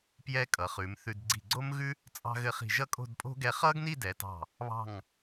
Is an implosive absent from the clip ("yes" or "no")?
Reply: yes